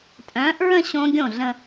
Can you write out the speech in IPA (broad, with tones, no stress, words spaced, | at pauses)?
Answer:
tʼœ̃ː˨˥ʔɹə̃˥˧ ɕõ˦˥ɡʲõ˥˩ɮə̃˥˧